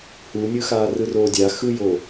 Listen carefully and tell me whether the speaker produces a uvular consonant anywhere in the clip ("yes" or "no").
no